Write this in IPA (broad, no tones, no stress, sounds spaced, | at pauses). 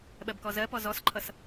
ɓ ɜ b k ɔ z ɜ p ɔ z ɔ s ǃʰ ʌ s